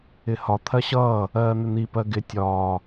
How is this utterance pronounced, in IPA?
ɪ h ɒ t̪ʰ ɜ ɕ ʌː | ɜː n̪ ɪ n̪ i p ɜ ɡ ɪ tʲ ɒː

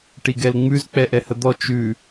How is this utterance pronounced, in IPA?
ʈ i ɡ ɛ l ŋ͡m ʉ z k͡p ɛ ʔ ɛ h ə d̪ ɔ t͡ʃ ʉ

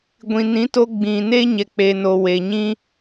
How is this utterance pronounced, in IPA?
ɡʷ ĩ˨ n ĩ˨˦ t o˧ ɡ͡b ĩ˨ n e˦ ɲ ɛ˨ k͡p e˨ n o˨ w e˨ ɲ ĩ˦

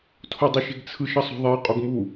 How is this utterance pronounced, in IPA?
tʰ o dˤ u ʃ e̤ ɡ t͡sʰ ɯ ʃ ʌ sˤ o̤ ðˤ e qʼ o ɡ m u

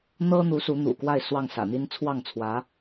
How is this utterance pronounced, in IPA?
n̪ ɤ˥ n̪ u˧˥ s u˧˥ n̪ ṵ˨˩ k w a˥˧ ɪ̯ s w ɑ˥˩ ŋ s ä̰˨˩ n̪ i˥ n t͡sʰ w ɑ˥˩ ŋ t͡sʰ w ä˧˥

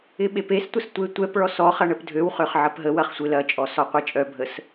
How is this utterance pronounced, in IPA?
ɪ ɓ e p e s tʷ ə s tʷ e tʷ ɛ p ɭ ɔ s ɔ χ ɐ ɳ ə p dʱ ø w χ ø χ ʕ ɐ p ɦ ə w ɐ χ sʷ ɪ l ɐ t͡ʃʼ ɔ s ɔ qʷ e t͡ʃʼ œ bʱ ə s

